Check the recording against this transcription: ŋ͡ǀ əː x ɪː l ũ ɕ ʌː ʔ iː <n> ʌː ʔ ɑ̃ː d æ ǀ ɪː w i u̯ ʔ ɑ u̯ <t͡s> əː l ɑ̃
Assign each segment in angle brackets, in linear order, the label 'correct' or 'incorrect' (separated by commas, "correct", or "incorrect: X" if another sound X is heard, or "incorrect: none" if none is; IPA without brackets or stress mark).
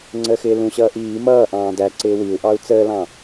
incorrect: m, correct